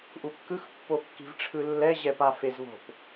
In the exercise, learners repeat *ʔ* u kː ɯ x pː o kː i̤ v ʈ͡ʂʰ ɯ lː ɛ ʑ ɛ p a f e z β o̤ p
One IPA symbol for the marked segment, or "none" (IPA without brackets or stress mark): ʔ